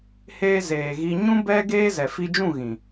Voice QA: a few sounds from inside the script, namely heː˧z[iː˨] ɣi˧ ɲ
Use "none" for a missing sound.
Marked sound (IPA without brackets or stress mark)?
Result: eː˨